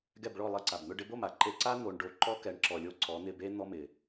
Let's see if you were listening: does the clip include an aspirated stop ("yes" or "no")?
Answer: no